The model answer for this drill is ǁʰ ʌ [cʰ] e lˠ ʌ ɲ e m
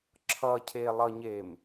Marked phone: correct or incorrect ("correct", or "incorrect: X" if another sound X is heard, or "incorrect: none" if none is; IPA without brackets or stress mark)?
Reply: correct